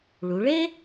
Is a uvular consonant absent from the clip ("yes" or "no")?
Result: yes